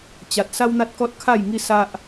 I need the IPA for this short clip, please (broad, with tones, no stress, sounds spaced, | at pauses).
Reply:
t͡ɕ a˨ t̚ s a˦ w n̪ a˦ t̚ k ɔ˦ t̚ kʰ a˥˧ j ŋ i˦ s a˦ ʔ